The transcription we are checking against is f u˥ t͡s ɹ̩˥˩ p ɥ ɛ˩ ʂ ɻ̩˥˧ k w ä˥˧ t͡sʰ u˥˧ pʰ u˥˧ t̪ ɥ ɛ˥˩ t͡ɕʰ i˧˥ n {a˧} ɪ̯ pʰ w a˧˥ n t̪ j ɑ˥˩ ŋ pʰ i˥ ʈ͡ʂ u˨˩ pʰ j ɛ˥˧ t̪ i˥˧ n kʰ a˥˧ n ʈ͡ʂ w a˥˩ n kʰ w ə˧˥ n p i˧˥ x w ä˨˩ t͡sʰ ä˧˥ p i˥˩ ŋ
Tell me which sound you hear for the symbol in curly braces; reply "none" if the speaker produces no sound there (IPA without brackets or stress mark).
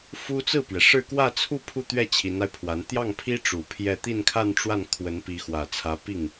a˧